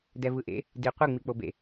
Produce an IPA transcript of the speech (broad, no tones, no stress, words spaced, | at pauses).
dɛvɯʔḛ | di qʷe ŋ͡mik͡pobḛ